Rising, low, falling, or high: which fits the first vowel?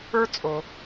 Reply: high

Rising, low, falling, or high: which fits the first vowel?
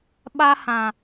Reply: high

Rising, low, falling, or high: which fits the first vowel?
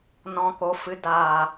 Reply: low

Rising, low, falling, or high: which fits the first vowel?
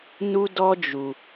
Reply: high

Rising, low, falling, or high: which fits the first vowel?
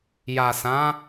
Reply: low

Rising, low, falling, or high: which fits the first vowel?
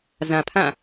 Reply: low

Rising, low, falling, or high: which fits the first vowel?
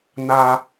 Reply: high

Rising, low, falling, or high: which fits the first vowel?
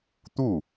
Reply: falling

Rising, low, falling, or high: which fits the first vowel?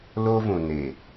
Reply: high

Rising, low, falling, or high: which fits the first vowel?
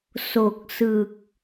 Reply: low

